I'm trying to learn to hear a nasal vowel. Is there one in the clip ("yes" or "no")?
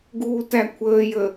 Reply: no